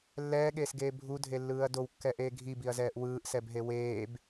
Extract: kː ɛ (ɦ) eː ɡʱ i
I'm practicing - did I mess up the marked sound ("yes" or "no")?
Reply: yes